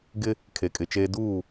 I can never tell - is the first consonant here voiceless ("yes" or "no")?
no